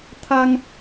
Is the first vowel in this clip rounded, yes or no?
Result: no